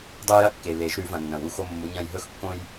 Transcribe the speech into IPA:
dˤ ʉ˦ j ɐ˥˨ kː e˨ β e˨˩˦ ʒ ɾ ʉ˨˩˦ v ɐ̃˨ nː ɐ̃˨˩˦ w u˨˦ x o˦ mː u˨˦ ɲ ɐ̃˦ j ɦ ɵ˦ x kː õ˦ j

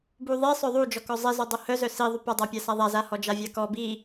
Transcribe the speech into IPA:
b u ðˤ i sˤ œ ðˤ u d͡ʒ ɔ k ɔ zˤ i z ɔ dˤ u h œ z œ s i ðˤ u p a dˤ a pʲ a s a ðˤ a z a h ɔ d͡ʒ a vʲ a k ɔ b i

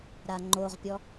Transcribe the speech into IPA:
ɾ a ŋ͡ǃ o ʁ pʲ ɔ

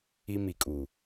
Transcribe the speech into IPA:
i˦ m i˨ kʼ uː˨

